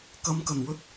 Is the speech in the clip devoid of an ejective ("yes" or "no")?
yes